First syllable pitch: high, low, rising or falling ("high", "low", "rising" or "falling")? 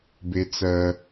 high